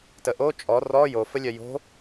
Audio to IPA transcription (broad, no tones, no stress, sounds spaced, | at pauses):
t ə ʔ o t͡ʃʼ ɔ r ɔ j o f ə lʲ œ j o̤